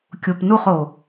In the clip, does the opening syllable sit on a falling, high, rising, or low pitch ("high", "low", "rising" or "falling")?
low